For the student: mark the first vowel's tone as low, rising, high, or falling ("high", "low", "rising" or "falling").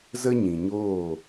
high